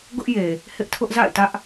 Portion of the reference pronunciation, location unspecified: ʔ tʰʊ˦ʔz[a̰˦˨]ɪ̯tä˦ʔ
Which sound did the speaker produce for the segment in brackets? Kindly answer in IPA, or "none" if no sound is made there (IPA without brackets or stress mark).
a̰˦˨